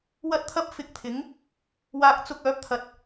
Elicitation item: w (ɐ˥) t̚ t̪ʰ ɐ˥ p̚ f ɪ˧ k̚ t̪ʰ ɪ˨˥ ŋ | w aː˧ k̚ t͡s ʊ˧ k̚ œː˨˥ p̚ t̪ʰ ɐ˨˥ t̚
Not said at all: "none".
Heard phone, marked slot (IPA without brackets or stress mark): ɐ˥